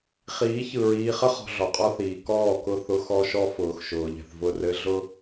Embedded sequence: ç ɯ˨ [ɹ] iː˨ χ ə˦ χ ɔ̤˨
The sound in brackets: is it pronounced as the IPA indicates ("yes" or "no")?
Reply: yes